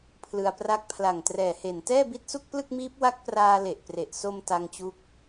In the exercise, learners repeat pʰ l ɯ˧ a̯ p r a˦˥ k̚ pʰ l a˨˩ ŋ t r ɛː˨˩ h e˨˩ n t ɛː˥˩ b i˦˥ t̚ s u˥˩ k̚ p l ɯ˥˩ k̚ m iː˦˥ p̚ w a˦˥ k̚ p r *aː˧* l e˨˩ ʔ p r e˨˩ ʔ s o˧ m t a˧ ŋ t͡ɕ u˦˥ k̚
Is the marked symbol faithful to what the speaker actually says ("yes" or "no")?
yes